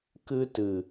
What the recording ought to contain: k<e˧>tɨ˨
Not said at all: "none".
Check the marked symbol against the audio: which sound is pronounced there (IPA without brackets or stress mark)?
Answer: ɨ˧